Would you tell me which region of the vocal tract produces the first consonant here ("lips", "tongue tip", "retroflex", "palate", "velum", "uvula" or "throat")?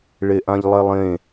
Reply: retroflex